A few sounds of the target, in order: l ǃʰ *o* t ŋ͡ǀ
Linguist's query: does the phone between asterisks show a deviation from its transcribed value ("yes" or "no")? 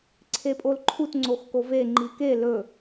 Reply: yes